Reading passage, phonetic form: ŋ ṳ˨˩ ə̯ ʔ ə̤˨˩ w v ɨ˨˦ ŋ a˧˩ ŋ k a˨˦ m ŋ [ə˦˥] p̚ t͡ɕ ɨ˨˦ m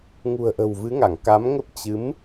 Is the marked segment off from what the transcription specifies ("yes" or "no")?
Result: no